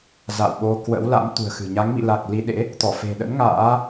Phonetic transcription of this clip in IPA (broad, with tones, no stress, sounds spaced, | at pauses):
z a̰˧˨ w ɓ o˧ k w ə̰˧˥ w l a̰˧˥ m t̪ ṳ˨˩ ə̯ x ɨ̤˨˩ ɲ a˨˦ ŋ m ḭ˧˨ l a˨˩ k̚ l i˧ ɗ ḛ˧˥ | t̪ ɔ˧˩ f e̤˨˩ ɗ ə̰˧˥ n ŋ a̰ː˧˥